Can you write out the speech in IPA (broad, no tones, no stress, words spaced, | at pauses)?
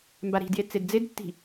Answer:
mbaɾi̤dje t͡sedd͡zedtːi̤